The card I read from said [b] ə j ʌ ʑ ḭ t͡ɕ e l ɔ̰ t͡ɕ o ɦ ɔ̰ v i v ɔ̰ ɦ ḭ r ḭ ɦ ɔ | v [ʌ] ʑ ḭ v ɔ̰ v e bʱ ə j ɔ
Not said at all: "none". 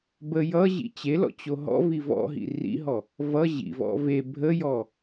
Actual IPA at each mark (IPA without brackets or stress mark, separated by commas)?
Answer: b, ʌ